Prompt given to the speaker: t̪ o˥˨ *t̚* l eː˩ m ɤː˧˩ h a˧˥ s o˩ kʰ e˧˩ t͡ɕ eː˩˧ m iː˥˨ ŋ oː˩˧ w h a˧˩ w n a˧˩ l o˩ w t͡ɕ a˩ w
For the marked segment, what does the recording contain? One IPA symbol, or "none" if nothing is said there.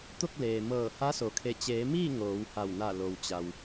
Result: k̚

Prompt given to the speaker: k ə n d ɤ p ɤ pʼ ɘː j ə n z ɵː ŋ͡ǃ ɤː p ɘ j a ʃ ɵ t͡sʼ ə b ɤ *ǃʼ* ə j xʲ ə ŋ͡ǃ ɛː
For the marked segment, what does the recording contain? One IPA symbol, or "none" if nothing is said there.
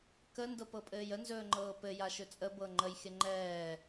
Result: ŋ͡ǃ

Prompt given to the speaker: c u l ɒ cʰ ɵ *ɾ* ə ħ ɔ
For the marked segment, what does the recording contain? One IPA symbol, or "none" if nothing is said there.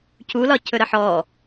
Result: ɾ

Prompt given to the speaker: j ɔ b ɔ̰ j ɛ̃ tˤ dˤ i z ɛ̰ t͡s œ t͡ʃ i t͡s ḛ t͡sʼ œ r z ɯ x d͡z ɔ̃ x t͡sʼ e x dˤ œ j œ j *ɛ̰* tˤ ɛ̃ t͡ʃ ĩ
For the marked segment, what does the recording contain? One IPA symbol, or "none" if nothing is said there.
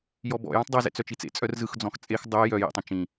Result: ɛ̰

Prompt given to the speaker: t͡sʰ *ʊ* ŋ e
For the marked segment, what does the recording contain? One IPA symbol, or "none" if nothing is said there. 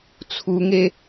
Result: u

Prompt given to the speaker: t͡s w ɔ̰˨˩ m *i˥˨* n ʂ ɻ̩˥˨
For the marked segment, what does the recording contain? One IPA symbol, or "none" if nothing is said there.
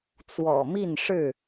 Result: i˥˨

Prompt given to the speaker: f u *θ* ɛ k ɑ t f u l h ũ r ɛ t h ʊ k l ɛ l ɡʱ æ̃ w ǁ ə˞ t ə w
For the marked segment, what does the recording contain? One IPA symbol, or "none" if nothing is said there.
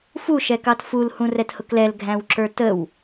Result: ʃ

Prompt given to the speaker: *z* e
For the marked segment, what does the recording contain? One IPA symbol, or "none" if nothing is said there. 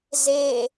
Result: z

